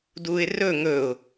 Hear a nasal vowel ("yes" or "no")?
no